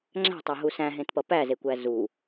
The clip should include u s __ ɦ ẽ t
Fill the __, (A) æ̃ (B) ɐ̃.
A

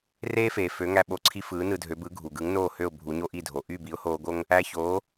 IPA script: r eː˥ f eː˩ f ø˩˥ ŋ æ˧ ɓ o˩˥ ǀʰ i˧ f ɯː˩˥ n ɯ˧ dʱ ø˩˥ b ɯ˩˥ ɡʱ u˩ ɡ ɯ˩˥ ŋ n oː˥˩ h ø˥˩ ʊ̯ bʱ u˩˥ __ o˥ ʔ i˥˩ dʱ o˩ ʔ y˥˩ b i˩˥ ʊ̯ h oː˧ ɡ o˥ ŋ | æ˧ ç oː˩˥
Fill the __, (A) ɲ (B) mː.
A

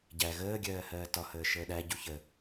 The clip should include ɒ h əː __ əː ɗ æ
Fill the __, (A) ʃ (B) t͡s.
A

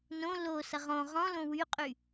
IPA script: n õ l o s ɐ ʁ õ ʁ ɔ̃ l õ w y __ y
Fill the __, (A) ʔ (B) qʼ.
B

